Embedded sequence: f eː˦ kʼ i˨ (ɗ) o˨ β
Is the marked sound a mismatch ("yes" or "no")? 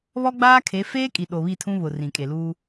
no